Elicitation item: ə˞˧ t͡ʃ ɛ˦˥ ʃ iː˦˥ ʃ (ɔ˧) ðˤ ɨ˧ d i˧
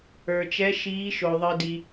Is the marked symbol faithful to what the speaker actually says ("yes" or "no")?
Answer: no